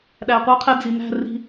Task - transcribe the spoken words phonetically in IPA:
ɗ æ˨ qʷ ʌ˧ qʰ ɛ˧ d͡z i˨ n æ̤˦˨ r i̤˧

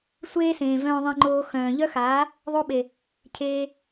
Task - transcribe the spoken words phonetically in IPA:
sʷ eː˦ s ẽː˨ v œ̃ː˧ ðˤ ẽ˧ ŋ͡ǃ oː˧ x œ̃ː˨ ʎ œ˦ x aː˨˦ | ðˤ o˦ ɓ e˨ | cʰ eː˧

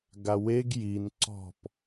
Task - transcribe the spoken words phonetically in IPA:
ɡ a w e ɡ j i n ǀ ɔ̤ p

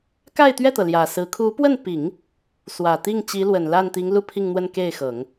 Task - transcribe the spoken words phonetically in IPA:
k a˥˧ ɪ̯ t̪ ɥ ɛ˥˩ t̪ ɤ˩ l j ä˨˩ s ɹ̩˧˥ kʰ u˧˥ p w ə˥˩ n p i˨˩˦ ŋ | s w ä˨˩ t̪ i˥˩ ŋ t͡ɕ i˧˥ l w ə˨˩ n l a˥˩ n t̪ i˧˥ ŋ l u˥˧ pʰ i˥˧ ŋ n̪ w ə˥˧ n k e˥˩ ɪ̯ x ɤ˨˩˦ ŋ

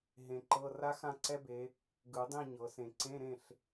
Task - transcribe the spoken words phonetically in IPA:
ɦ ẽ˨˩˦ ǃ ɤ˧˥˧ r a˦˥ x ã˥˨ ǀ ɛ˦˥ b e˨˦ | ɡ ɯ˨˩˦ dˤ ĩ˥˨ ɲ ɤ˨˩˦ s ẽ˨ ǀ ẽ˧˥˧ ɾ ẽ˥˨ ɬ

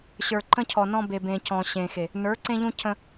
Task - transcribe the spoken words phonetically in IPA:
ɕ ə˞˨ ǃ ə̃˦ cʰ ɔ˨ n ɔ̃˦ b e˨ b ẽ˨ c ɔ̃˨ ɕ ẽ˨ x e˨ | n ə˞˨˦ ǀ ẽ˦ ʎ ũ˦ cʰ ə̃˦

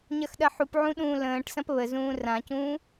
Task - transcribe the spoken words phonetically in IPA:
ɲ ɐ x ɗ ɐ ħ u p ʕ ũ ɗ ũː l ə̃ː ʈ s ɐ̃ p β ə z ũː r ã c ũː

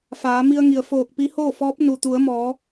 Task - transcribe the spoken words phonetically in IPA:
f aː˩˧ m i˧ ə̯ ŋ i˩ ə̯ f oː˧˩ k̚ p i˧˥ h oː˥˨ f ɔː˧˥ p̚ n u˩ t̪ u˩˧ ə̯ m ɔː˩˧

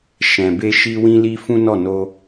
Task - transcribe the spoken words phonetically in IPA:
ʃ ɛ̃˨ b e˧ ʃ i˧ w ĩ˧ l i˧ f ũ˦ n ɔ˦˨ n o˧

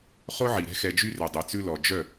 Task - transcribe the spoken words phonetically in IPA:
χ o˦ ʕ i˨ ɾ ɛ̤˦ x ɛ˧ d͡ʒ y˦ r ø˨ dˤ y˨ t͡s ʉ˧ l ɔ˨ d͡ʒ œ˦˨

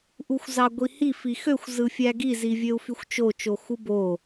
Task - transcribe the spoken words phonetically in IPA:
ʔ u xʷ z ɑ ɡʷ i h i f i x ø xʷ z ɯ fʲ æ ɡ i z i vʲ ø u̯ f y xʷ t͡ʃ o t͡ʃ o x u b o

